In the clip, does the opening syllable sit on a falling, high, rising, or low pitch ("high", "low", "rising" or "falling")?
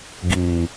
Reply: low